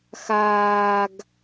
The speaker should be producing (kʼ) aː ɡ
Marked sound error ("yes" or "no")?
yes